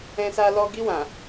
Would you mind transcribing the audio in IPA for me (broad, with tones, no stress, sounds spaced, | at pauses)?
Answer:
ɛ̃˧ s a˧ l ɔ˧ ɡ i˧ w ã˨